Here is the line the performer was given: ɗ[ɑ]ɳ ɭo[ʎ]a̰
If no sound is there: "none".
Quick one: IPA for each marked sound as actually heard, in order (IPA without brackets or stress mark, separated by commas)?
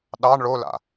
ɑ, l